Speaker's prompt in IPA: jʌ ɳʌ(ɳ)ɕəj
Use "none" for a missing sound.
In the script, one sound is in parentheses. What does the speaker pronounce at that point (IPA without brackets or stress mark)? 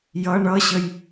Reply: none